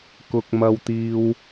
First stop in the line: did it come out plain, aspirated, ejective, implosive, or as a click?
plain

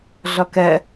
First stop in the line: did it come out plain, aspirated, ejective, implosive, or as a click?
plain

